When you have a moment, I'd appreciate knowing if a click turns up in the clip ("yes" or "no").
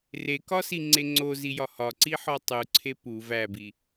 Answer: yes